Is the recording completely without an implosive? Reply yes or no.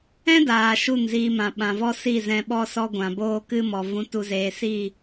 no